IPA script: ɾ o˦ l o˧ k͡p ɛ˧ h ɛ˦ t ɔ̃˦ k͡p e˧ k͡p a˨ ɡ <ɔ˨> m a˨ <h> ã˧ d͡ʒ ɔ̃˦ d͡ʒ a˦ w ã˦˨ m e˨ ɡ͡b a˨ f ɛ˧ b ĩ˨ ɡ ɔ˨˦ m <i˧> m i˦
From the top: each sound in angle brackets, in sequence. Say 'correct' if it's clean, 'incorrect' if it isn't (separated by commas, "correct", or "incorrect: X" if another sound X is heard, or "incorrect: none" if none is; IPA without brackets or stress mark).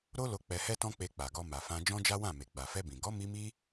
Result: incorrect: ɔ˧, incorrect: f, correct